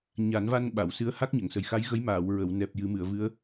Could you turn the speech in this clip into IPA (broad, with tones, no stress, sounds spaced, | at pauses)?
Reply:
ɲ a˨˩˦ n v a˧ n ɓ a˨˩˨ w s ɨ˧˥ ə̯ h a˦˥ k̚ ɲ ə˨˩˨ ŋ s ə˨˩ j x a˧˥ j ɣ ə˧˥ j m aː˨˩˨ w ɹ ə˨˩˨ w n ɛ˨˩ p̚ j ɨ˨˩˦ m ɨ˨˩˨ ə̯ v ɨ˧˥ ə̯